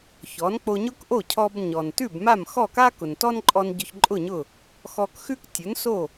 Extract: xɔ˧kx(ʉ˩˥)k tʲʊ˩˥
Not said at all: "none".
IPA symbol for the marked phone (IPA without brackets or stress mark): ʉ˥